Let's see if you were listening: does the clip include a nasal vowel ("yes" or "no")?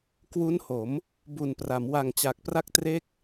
no